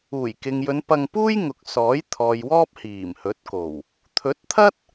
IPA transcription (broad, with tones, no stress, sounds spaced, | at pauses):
uː˨˩ j k ɪ˨ ŋ j ɵ˨˧ n p ɐ˧ ŋ p uː˥ j ŋ ʊ˨ k̚ s ɔː˨˥ j t̪ʰ ɔː˨ j w ɔː˥ p̚ h iː˨˩ m h ɵ˨˥ t̚ k o˨˩ w | t̪ʰ ɵ˨˥ t̚ t̪ʰ ɐ˥ t̚